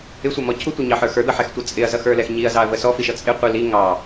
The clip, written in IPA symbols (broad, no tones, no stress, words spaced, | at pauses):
ɪsʷʌmɔ cʰutʷʌɲɑħə˞ xə˞d̪ʌħɛxtʷʌ t͡sʼɪɐ̯zʌxə˞lɛx ɲiɐ̯zɑɐ̯və sɔfiʃʌ t͡sʼɪqʷi li ŋɑ